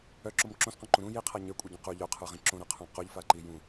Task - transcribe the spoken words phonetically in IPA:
œ ǁ o m ǁ õ s q õ ǃ ũ ɾ ũ j i qʰ a ɲ ə˞ kʷʼ œ ɟ õ q u ʎ œ qʰ ə˞ ʁ ĩ ǁ õ ɾ a qʰ õ q o ʎ f a ǃ i j ũ

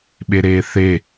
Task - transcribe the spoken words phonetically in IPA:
ɓ e ɾ eː θ e

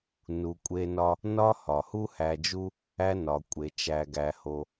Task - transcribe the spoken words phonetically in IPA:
n u˨ kʷʼ e˦ n ɒ˦ | n ɒ˦ h ɒ˩ h u˥ h æ˨ d͡ʒ u˦ | æ˦ n ɒ˩ kʷʼ e˩ t͡ʃ æ˨ ɡ æ˨ h o˨

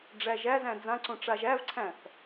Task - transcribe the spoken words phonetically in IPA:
ɖ͡ʐ æ ʒ æ z æ̃ d͡z ã ǀ õ ʈ͡ʂ a ʒ æ v ǀʰ æ̃ θ

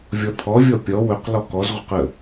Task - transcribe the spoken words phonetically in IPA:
vʲ ɔ t̪ʰ ɔ vʲ ɔ pʲ ɔ w ɵ q l ɔ k ɔ z ʁʷ ə q ə

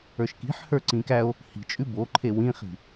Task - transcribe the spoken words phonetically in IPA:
ə˞ ʃ k i̤ ħ h ə˞ ǀ ĩ k æ o̯ | h i̤ t͡ʃʼ ʉ b o ǃʰ e w ĩ χ i̤

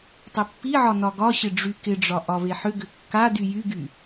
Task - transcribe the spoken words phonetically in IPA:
tˤ ʏ pː i ʕ ɒ n ɒ ɡ ɒ ɕ ɪ ɖ͡ʐ y k ɪ ɖ͡ʐ ɒ ʔ ɒ v e ħ ʏ ɡ ʏ kː a d y j y ɡ y

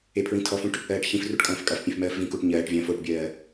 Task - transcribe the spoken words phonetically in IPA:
e pʰ ɹ ĩ tʰ ɔ f ũ ʈ | ɜː ʈ ç ĩ f r u ʈ kʼ ɐ̃ː f kʼ ɐ f pʲ ẽ f m ɜː f v ĩ k u ʈ ɲ ɜː ʈ vʲ ɐ̃ː f o ʈ bʲ ɜː

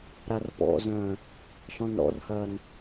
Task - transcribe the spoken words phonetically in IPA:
ɾ a r p ɔ̰ z œ̃ː | ɬ ɔ̃ n ɾ ɔ̰ r h ɐː n

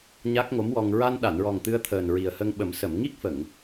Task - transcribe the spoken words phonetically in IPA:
ɲ a˦˥ k̚ ŋ o˧˥ m w ɔ˧ ŋ ɹ a˧ n ɗ a˨˩˨ n ɹ ɔ˨˩ ŋ t̪ ɨ˧ ə̯ t̪ʰ əː˨˩ n ɹ i˨˩ ə̯ h ə˧ ŋ ɓ ə˨˩˦ m s ə˨˩˨ m ŋ i˦˥ k̚ f ə˨˩˨ ŋ

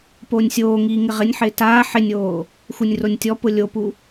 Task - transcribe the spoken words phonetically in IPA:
p oː nʲ sʲ oː ŋ iː ŋ ɪ ʁ ɪ nʲ ħ ɪː t aː ħ ɪ nʲ oː | x u nʲ r o nʲ tʲ ɔ p ʊ lʲ o p u

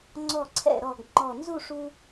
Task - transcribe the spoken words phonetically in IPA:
ŋ͡ǀ ɔ˧˩ ǀʰ ɛ̰˧˩ ɾ ɔ˧˩ ɡ ŋ͡ǃ ɔ˧˩ n z u˥˧ ʂ u˧

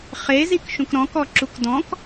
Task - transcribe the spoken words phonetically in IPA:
χ e z i k ʃ ũ k ɾ ɔ̃ k ɔ ǁ u k d ɔ̃ k

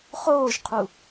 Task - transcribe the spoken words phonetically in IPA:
χ oː ʒ qʰ u

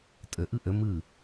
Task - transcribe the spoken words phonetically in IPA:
tʼ ə ʔ ɯ ʔ ə m ɯ

